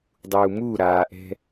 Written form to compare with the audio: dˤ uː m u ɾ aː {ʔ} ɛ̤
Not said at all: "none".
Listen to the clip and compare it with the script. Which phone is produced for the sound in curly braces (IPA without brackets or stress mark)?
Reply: ʔ